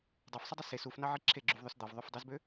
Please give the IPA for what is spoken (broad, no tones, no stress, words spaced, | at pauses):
dˤɑfsˤidˤi se sufnɑʕi ǁʰeɡ͡ǁyvðˤøs d̪ɑvðˤøfdˤezbø